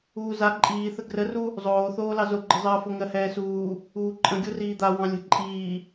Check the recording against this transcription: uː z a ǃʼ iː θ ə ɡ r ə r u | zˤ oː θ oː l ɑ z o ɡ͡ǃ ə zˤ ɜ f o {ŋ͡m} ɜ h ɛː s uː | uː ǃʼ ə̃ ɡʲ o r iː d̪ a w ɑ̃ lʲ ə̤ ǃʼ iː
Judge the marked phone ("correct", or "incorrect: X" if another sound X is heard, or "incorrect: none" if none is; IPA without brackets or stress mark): incorrect: ŋ